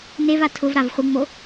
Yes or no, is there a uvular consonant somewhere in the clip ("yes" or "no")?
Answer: yes